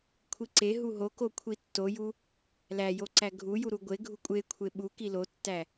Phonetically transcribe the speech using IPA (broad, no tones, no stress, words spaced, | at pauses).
kʷʰiǀeɦu ɦoko kʷʰitːoju | læjo ǀæɡʱuju ɾuɡʷeɡʱu kʷʼekʷʰe ɓuki lotːæ